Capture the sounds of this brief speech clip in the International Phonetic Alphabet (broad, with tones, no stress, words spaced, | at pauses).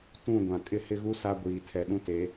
tũ˦˨ ɡʷã˨ kʼɪ˦ hɪ˦ɣu˦ sa˦ɡʷiː˨ tʰɛ˨ɗũ˦te˨˦